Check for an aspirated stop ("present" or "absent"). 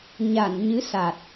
absent